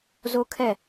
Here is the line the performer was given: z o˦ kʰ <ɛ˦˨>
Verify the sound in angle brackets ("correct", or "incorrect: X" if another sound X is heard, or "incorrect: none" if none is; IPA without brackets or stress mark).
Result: correct